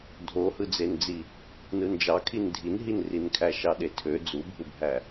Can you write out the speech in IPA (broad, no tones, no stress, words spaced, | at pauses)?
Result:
dʱohɯd͡zend͡zi | nɯnd͡ʒɑkʰin dʱinɦinrinkʰæ ʃɑɗetʰø d͡zubʱubʱæ